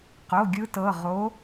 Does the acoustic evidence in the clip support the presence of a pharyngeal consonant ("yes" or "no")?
no